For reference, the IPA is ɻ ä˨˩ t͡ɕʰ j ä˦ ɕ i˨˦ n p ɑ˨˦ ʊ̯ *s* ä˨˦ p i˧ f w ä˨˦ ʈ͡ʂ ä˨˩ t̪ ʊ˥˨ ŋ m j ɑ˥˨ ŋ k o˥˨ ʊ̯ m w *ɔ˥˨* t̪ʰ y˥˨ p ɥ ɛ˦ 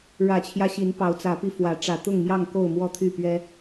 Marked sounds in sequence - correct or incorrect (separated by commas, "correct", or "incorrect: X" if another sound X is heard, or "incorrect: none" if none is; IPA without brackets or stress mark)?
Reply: incorrect: t͡s, correct